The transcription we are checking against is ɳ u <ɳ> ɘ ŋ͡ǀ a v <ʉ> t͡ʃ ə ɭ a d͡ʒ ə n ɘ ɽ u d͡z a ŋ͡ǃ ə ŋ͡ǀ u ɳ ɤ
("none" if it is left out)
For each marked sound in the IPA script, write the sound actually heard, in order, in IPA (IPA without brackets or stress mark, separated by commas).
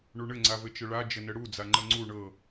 ɳ, ɘ